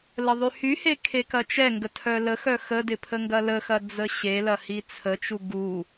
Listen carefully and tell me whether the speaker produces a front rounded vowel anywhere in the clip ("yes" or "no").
yes